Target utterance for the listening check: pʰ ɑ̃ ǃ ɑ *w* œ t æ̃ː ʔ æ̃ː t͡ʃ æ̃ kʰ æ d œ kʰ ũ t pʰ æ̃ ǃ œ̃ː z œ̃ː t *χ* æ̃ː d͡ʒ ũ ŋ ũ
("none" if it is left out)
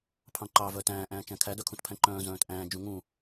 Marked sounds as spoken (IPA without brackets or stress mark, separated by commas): v, ʔ